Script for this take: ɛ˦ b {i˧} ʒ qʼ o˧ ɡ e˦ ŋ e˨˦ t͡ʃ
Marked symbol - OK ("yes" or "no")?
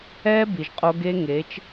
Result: no